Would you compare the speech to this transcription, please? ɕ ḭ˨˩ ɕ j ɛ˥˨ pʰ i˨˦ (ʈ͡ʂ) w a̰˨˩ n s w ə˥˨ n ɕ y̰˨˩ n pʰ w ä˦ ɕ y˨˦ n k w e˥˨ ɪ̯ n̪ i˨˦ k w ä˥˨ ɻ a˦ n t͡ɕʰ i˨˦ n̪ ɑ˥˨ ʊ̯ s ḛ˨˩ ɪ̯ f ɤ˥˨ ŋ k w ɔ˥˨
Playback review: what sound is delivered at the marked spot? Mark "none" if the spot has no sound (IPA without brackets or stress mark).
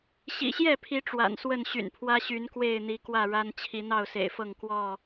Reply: ʈ͡ʂ